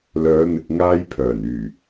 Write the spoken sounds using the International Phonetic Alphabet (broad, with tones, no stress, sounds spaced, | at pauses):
l œː˨˧ n̪ ɪ˨ k̚ ŋ aː˧ j pʰ œː˨˩ n yː˨˩